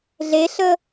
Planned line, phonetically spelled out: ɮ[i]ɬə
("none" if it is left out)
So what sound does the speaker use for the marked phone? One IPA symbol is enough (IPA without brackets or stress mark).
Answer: e